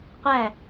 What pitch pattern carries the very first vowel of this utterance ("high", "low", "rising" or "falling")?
falling